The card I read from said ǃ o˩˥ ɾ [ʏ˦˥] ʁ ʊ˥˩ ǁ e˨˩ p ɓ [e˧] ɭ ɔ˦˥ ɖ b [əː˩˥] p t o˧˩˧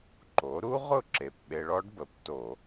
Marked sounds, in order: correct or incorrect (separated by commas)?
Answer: incorrect, correct, incorrect